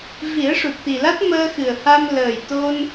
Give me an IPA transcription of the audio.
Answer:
vi˨˩˦ə̯ʂu˨˩t̚t̪i˨˩la˦˥t̚ məː˧xɨ˨˩ə̯ha˧m ləː˨˩jt̪o˧n

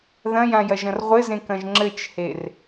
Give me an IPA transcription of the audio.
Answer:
ðɐ̃jãjɐʒɐ̃r ʁʷɘzẽkɐ̃ʒ ŋ͡ǁɘt͡ʃher

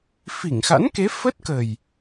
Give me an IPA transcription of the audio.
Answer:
fi˧˩ŋxa̰˧˥nke˨˦ fə˦˥t̚kə˨˩j

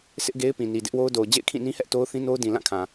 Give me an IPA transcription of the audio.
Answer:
sɪ˦ʔɡe˦ɪ̯pĩ˨ ni˨dɪ˦ʔwo˦ʊ̯do˨ʊ̯ d͡ʑḛ˦˨ɪ̯kʰĩ˦˨nĩ˦hɛ˦ʔ to˦ʊ̯θĩ˦no˦ʊ̯dĩ˨ lã˦˨kʰã˨

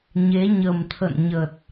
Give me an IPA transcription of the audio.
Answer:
ɲe˨˦ɲə˨˩mt̪ʰə̰˧˨n ɲə˨˩t̚

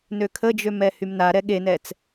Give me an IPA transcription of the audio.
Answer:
nøkʰəd͡ʒømɛ hymnaɾɛ ɠenɛt͡s

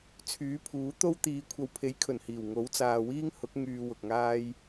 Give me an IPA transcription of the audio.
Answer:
t͡sʰyː˨˥pʰuː˨˥ t̪o˥wt̪iː˨˧ kʷʰɐ˨wpʰe˨˥jkʰɵ˨˩nhiː˨˩w ŋo˨˥wt͡saː˨wiː˥ŋ hʊ˨˥k̚ ŋyː˧wʊ˨k̚ŋaː˥j

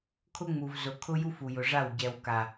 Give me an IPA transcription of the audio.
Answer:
kʰʊ˦ŋ͡mu˨v zʊ˨ kʰʊ˦ju˦f u˨jʊ˨ʐa˦˨w ɟɛ˨w ka˨

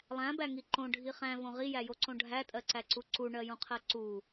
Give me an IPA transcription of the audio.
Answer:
lˠæ̃bæŋi ǃõɖʱi χæ̃võ ʁijæjoǀõ ɖʱætʼɜǀæǀu ǀuɳɜjũqʰɜ ǀu

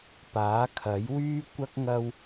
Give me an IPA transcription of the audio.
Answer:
paː˨˥kʰɐ˨˥jwyː˥kʷɐ˥k̚ ŋɐ˧w

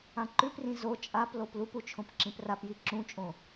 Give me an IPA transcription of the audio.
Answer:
ãǃʉprĩ zo t͡ʃʼaplop lupu t͡ʃʰõpǁĩprapji ǁũt͡ʃʼõ

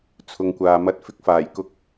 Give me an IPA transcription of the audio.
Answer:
t͡sʰʊ˨ŋkʷaː˨mɐ˧t̚ fɪ˧k̚faː˨˩jkʊ˧k̚

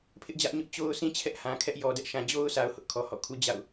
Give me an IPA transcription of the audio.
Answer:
pʰɪ˦ʔd͡ʑä˦ʔɲʊ˦ʔ t͡ɕo˦ʊ̯sĩ˦ t͡ɕʰɛ˦ʔhã˨kʰɛ˦ʔ jɔ˨dɛ˦ʔʃã˨ d͡ʑo˦ʊ̯ sa˦ʊ̯ hʊ˦ʔkʰɔ˨ hɔ̰˦˨kʰu˦ d͡ʑa̰˦˨ʊ̯

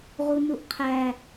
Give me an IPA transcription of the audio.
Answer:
ʁunuʔqʰæ

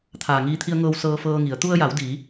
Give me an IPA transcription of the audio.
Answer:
t̪ʰaː˩ŋiː˧t̪ʰi˧ə̯ŋɤː˧w sɤː˧fɤː˧ŋi˩˧ə̯ t̪u˧ə̯ja˩˧wdiː˩˧

